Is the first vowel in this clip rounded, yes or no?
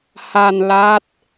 no